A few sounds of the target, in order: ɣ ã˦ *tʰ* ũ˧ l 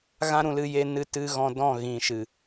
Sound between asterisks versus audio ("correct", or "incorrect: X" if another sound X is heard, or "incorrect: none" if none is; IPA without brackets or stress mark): incorrect: ɾ